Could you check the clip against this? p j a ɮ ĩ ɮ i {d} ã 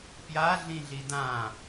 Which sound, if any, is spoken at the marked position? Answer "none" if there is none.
d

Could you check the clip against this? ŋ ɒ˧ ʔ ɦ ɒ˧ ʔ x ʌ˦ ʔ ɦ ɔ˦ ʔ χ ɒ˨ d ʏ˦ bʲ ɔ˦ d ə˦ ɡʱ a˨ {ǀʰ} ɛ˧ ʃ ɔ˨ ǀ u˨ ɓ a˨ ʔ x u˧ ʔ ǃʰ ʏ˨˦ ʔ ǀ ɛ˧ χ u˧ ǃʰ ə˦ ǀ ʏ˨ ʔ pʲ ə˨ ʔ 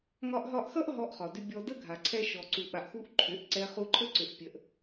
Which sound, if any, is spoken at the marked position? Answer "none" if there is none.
ǀʰ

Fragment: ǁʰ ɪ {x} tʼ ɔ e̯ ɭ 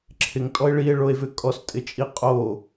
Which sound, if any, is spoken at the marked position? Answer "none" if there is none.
ŋ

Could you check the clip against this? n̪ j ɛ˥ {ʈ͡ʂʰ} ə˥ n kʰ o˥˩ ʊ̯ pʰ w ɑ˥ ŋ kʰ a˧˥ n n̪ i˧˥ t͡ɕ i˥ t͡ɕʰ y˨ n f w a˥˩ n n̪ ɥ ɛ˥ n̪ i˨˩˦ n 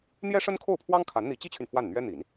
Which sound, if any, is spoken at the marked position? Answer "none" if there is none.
ʂ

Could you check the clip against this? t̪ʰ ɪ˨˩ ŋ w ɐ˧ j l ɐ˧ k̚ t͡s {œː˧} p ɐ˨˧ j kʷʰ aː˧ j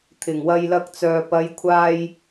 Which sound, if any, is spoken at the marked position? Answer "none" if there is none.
œː˨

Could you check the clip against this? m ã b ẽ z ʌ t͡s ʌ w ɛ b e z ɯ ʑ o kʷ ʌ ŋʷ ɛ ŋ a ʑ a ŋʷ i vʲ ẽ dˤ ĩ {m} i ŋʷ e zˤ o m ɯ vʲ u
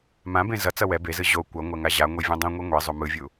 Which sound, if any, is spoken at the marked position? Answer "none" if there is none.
ŋʷ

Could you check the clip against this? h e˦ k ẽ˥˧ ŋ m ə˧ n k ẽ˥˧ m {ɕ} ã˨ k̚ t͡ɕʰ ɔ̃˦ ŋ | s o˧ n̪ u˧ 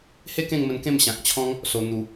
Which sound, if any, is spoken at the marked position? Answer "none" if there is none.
ɕ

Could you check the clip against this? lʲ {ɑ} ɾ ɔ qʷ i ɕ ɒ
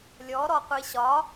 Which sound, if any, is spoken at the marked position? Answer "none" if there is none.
ɔ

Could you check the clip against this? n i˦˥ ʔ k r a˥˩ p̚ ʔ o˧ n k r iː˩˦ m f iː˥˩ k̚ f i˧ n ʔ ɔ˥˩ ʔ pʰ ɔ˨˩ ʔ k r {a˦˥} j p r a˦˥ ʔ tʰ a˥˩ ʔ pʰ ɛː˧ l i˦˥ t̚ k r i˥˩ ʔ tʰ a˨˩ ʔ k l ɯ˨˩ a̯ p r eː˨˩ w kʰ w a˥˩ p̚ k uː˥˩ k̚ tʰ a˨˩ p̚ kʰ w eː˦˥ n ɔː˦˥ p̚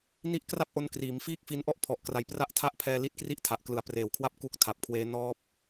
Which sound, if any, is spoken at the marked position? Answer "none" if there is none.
a˩˦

